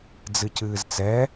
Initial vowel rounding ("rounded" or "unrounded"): unrounded